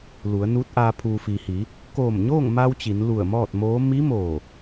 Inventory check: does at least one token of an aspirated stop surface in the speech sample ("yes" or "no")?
yes